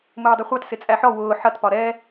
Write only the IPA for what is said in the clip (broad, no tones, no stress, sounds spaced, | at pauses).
m ʊː dˤ ʌ χʷ ɑ t s ɪ t͡sʼ æ ħ ɔ w ʊː ħ ʌ t p ɒ ɾ ɛ